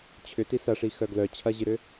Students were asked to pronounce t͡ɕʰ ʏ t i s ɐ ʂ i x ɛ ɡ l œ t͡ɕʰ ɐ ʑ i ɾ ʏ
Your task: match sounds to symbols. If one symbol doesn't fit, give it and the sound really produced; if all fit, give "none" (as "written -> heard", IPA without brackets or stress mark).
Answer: ɛ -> œ